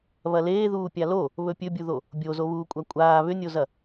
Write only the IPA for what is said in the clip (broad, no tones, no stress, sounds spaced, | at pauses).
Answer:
β ɐ l eː ð uː pʲ a l o | β ɵ pʲ ɵ bʲ u ð o | bʲ o z o β uː kʷʼ a kʷʼ aː β ʏ nʲ o z ɐ